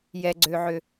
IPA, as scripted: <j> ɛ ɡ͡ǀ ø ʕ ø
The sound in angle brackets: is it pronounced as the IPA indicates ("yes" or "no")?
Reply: yes